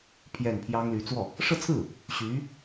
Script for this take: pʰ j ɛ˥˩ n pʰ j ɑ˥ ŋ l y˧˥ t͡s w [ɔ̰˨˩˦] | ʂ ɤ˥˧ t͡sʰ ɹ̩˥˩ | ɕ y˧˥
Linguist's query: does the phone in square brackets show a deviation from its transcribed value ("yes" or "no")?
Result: yes